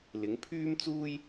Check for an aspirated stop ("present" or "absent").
present